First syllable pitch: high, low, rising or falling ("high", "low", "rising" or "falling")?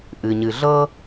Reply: low